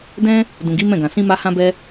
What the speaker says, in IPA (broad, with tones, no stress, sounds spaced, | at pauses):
d ɛ̃˦ | d ũ˨ ɡ i˨˦ m ɛ̃˦˨ ɡ ã˨ s ĩ˧ m a˧ h ã˦ b ɛ˦